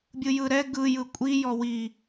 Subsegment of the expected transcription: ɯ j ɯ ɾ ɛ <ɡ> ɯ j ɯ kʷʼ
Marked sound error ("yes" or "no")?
no